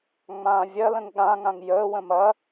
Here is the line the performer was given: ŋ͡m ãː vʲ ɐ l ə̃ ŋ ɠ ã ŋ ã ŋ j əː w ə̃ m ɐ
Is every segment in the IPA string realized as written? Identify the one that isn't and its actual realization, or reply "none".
none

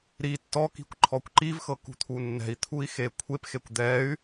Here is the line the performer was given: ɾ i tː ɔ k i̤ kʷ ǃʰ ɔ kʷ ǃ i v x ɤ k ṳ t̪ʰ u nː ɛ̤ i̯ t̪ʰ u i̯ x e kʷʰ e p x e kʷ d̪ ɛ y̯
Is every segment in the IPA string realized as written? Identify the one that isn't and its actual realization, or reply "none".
none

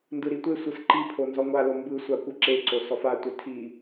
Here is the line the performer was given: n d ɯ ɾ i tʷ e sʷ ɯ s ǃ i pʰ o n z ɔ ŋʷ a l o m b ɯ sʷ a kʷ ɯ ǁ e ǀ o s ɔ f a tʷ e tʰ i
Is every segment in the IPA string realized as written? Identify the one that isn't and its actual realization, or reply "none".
none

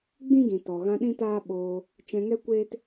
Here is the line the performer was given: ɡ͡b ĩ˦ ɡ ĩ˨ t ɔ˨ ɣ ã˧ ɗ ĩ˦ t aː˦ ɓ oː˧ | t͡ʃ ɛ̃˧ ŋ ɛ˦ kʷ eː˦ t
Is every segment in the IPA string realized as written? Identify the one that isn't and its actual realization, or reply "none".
none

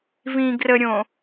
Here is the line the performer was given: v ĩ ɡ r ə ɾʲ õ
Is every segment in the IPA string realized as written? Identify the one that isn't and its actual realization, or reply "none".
none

